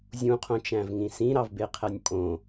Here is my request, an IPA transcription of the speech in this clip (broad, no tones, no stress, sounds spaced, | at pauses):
zʲ ũ qʰ õ t͡ʃ æ̃ v ŋ ĩ s ĩ ɾ ɑ v b e qʰ æ nʲ pʼ õ